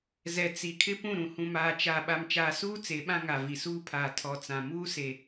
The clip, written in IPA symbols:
z ɛ˨ t͡s i˨ kʰ ɪ˦ p ũ˦˨ ɾ ũ˨ h ũ˨ m aː˨ t͡ʃ a˨ ɓ a˨ m t͡ʃ aː˨ s uː˦ t͡s e˨˦ ɓ ã˦ ŋ a˨ v i˨ s uː˦ pʰ aː˨ tʰ ɔ˨ t͡s ã˨ m uː˦ s e˨

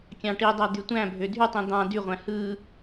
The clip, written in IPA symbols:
kʲ ɑ̃ ʈ i dˤ æ d̪ y tʷ æ̃ bʱ ø dʱ y tˤ ĩ d̪ ɑ̃ d y ʁʷ æ̃ h ɯ

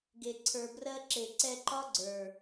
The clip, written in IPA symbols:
ɡ e˨ ǀʰ ə˞˨ b r ɜ˧ ǁ e˨ ǀ ɛ˧ ǃ ɒ˦ ɡ͡ǀ ə˞˨

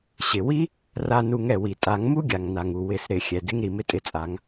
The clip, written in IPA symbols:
ɕ ɪ˩ w i˥ | r a˧ n u˨˩˦ ŋ ɛ˩ w i˩ tʼ a˨˩˦ ŋ m u˥ ɡʲ a˩ ŋ n a˩ ŋ u˩ w ɪ˨˩˦ s ɾ ɪ˨˩˦ xʲ ɛ˩ d ɪ˥ ŋ ɾ i˩ m ɪ˥ tʼ ɪ˧ t͡sʼ a˨˩˦ ŋ

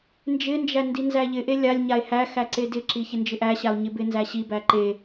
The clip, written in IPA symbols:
n d͡ʒ ɪ n d͡ʒ æ n d i n z æ ʎ ɪ ʔ e lʲ a lʲ ɲ a e̯ h æ x æ ǀ e d ɪ ǁ i ç ɪ n d͡ʒ ɪ ʔ æ ɕ a o̯ ɲ ɪ b ɪ n z æ ɕ i b æ ǃ e

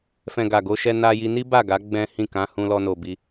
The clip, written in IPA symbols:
f ɛ̃˨ ɡ a˨ ɡ o˧ ʃ ɛ˧ n a˧ j i˧ n i˦ b a˦˨ ɡ a˨˦ ɡ͡b ɛ̃˦ h ĩ˦˨ k ã˧ h ũ˧ l ɔ˦ n o˧ b i˧

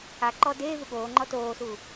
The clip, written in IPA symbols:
a ǃ ɔː d eː v u ɠ oː ŋ͡ǃ ɔ t oː s u

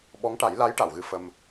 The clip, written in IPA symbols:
ɓ ɔ˧˥ ŋ ʈ a˨˩˦ j l a˧˥ j ʈ a˨˩˨ w ɣ ɨ˧ f ə˧ m

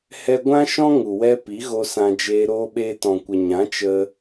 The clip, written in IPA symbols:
h ɛ˧ ɡʷ ã˦ ʃ ɔ̃˦ ŋ u˨ w ɛ˧ p i˨˦ ɣ o˧ s ã˧ d͡ʒ eː˧ ɾ oː˧ ɓ eː˧ t ɔ̃˨ kʷ ə˨ ɲ ã˨˦ t͡ʃ ə˧

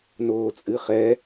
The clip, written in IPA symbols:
n oː t͡sʼ ɨ χ ɛ

